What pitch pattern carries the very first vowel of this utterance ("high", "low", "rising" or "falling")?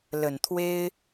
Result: low